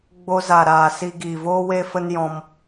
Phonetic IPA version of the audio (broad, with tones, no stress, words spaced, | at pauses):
ɡ͡bo˧za˨ɾaː˨ si˧ɡiː˨voː˦ we˦ fə˦njɔ̃˧m